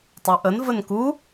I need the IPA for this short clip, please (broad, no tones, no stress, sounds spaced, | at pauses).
tˤ ʌ ʔ ə n v ə n k u